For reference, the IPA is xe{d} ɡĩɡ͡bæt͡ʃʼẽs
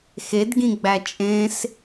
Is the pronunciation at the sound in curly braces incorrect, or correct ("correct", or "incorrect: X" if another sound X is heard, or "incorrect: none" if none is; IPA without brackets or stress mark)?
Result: correct